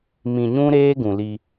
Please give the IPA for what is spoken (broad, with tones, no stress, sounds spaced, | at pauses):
m ĩ˨ ɲ ũ˦ ɾ eː˦ ɡ ũ˨ l i˦